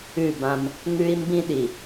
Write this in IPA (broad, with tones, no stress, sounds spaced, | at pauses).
ʉ˦˨ b ã˦ m | ŋ ʉ˦ i̯ m b ĩ˦ ɗ i˨